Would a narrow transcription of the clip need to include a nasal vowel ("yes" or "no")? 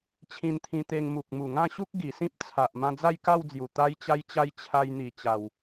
yes